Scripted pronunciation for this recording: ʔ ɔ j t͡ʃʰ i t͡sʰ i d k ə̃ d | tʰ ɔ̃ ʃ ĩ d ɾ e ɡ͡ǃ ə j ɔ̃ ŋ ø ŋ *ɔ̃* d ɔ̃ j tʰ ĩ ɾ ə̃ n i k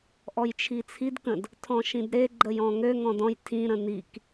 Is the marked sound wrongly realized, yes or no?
no